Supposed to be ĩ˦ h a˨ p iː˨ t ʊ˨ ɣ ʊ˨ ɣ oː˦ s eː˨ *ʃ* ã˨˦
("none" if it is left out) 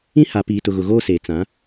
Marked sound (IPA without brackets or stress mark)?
t͡s